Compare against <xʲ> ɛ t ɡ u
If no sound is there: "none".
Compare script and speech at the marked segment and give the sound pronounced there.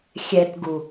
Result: xʲ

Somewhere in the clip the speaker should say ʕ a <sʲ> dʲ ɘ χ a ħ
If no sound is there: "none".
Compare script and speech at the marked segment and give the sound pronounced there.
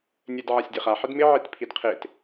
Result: sʲ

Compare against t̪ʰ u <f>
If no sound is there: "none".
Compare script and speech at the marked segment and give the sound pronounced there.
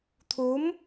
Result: m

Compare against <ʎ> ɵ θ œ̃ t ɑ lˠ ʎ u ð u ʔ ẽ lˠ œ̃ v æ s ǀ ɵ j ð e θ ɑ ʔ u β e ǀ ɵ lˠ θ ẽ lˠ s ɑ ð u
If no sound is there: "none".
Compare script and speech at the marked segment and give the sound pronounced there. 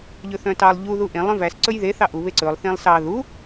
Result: ʎ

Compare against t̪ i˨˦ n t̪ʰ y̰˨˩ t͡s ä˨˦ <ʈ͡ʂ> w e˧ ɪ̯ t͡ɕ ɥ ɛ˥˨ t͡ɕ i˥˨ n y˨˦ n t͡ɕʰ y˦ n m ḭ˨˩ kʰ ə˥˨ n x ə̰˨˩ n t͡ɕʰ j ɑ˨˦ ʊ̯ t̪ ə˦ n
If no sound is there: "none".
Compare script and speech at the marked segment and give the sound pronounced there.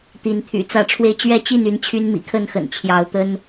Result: ʈ͡ʂʰ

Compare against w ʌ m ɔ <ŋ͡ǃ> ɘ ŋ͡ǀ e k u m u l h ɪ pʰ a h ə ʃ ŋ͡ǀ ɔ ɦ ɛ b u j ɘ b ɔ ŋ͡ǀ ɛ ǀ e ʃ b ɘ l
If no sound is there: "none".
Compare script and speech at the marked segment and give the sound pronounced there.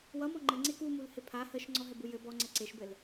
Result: ŋ͡ǃ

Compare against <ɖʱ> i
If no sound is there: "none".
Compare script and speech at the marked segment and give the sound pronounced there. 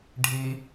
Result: ɖʱ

